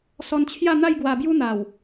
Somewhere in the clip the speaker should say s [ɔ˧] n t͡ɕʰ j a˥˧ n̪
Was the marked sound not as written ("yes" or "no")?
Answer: no